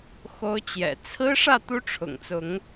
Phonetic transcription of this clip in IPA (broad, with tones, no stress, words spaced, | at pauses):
xo˦ʊ̯t͡ɕjɛ̰˨˩ t͡sʰɹ̩˦ʂä˥˨ t̪u˦ʈ͡ʂʰʊ̰˨˩ŋt͡sʊ˨˦ŋ